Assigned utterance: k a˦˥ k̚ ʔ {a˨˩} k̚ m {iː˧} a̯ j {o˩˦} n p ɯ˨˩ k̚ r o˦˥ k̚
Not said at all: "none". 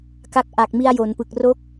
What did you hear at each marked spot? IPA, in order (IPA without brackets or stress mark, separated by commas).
a˨˩, i˧, o˩˦